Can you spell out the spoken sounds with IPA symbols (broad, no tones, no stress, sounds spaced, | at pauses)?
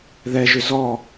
ð ɛ ʒ ʏ z ɔ